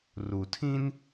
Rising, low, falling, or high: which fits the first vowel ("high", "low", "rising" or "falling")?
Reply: low